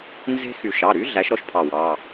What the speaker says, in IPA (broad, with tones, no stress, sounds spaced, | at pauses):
n z e̤˦ x y˨˩˦ ʃ ɑ˩˧˩ ɾ y˨˥ ɮ æ˨˥ ʃ ɾ ɔ˦ ʃ pʰ ɑ˧˩ w ɑ˩˧˩